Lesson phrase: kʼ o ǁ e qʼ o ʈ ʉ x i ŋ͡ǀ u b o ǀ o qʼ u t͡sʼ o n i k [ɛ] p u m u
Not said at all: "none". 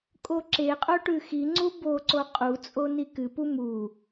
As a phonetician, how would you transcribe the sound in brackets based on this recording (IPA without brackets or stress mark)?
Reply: ɨ